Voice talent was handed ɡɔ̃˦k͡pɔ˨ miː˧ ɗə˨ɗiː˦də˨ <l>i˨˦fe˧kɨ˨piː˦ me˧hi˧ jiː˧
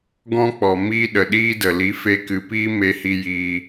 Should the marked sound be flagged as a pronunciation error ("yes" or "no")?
no